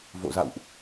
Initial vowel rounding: rounded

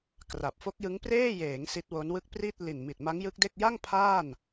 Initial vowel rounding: unrounded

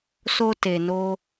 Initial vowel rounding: rounded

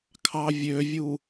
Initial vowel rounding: unrounded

